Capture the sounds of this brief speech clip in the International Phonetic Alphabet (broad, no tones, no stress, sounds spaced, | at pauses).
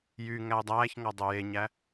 j y ŋ æ u̯ dˤ æː ç ŋ ɔ dˤ ø j e ɲ æ